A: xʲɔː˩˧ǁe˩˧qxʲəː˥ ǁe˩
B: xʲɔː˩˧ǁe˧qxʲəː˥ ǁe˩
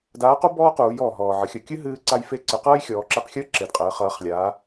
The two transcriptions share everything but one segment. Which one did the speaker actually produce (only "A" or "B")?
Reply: B